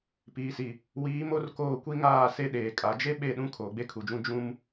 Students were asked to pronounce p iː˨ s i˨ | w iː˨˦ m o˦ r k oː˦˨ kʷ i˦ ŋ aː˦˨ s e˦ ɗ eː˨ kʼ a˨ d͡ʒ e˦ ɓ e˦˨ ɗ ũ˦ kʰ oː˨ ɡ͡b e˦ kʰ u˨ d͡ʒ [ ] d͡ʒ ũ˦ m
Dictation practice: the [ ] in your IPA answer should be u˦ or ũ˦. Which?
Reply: ũ˦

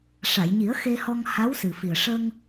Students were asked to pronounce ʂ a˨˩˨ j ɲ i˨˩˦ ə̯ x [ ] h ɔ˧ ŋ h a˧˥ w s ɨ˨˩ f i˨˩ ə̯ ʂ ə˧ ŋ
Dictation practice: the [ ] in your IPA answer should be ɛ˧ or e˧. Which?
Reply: e˧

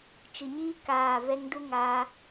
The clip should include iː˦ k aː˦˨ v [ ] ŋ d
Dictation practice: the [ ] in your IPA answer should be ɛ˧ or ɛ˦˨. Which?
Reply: ɛ˧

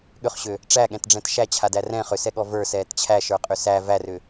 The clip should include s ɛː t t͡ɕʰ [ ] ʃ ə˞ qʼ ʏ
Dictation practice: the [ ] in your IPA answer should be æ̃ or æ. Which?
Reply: æ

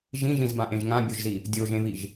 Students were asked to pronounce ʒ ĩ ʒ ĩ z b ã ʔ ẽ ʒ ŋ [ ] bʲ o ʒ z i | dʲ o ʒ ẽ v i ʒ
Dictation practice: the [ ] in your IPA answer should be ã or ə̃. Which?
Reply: ã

